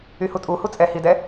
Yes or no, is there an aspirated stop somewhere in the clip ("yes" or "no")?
no